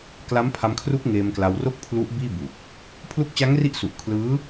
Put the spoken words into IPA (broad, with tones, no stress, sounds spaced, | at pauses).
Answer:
k l a˦˥ m pʰ a˧ m kʰ r u˦˥ k̚ ŋ eː˧ m k l a˧ w r o˥˩ k̚ pʰ l u˦˥ ʔ b iː˥˩ b u˨˩ k̚ | pʰ l u˦˥ k̚ t͡ɕ a˦˥ ŋ r i˦˥ ʔ s u˨˩ ʔ kʰ l ɯː˦˥